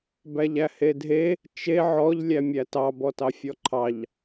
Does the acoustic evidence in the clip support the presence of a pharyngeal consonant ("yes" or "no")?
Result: yes